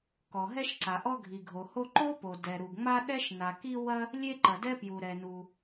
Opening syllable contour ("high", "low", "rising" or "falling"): low